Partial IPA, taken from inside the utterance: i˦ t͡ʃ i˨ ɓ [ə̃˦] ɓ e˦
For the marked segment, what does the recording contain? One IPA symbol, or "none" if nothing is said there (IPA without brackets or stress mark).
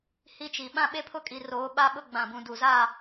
ã˦